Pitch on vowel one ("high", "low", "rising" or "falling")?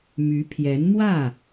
rising